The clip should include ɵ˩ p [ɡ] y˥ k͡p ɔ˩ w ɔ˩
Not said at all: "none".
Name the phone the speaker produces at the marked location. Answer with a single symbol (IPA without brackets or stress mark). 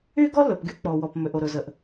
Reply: ɡ